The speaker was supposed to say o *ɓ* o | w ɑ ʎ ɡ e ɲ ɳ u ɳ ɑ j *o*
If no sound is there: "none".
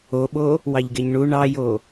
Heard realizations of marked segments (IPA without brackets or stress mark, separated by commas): ɓ, o